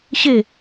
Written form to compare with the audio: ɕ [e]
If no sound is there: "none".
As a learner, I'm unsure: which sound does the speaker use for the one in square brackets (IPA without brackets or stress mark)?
e